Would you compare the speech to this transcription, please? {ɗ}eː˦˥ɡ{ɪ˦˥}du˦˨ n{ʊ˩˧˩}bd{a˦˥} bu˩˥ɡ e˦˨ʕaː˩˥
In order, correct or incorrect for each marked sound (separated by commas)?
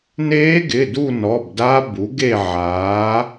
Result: incorrect, incorrect, incorrect, correct